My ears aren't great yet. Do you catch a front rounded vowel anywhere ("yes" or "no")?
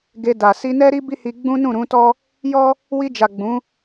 no